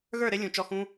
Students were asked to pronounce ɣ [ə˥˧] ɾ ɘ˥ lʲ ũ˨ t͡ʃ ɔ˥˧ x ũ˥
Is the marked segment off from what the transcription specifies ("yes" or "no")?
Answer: yes